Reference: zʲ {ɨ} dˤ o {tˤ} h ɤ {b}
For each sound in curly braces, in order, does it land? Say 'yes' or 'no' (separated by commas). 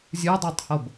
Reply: yes, yes, yes